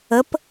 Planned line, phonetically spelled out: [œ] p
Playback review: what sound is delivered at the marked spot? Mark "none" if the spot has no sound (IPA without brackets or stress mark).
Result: ə